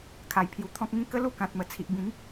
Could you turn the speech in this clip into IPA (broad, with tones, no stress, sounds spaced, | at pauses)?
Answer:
kʰ a˧ j pʰ j u˧ t̪ʰ ɔ̃˦ k̚ ŋ ĩ˦ k ə˦ l u˥˧ k ã˨ t̚ m ə˨˩ t͡sʰ i˨ ʔ b ĩ˨˦ ŋ